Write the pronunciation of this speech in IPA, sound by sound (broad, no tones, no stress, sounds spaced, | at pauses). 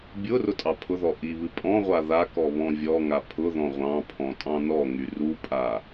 bʲ ʊ r ʊ tʼ ɑ pʰ ʊ ð ɔ ʔ i β ɨ pʼ ɔ̃ ʁʷ a ð a k ɔ β ɔ̃ vʲ ɔ ŋ a pʰ ʊ ð ɔ̃ ʁʷ ɑ̃ pʰ ɔ̃ tʼ ɑ̃ n ɔ ŋ y r u pʼ a